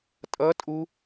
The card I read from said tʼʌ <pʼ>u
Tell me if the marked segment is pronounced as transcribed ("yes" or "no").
no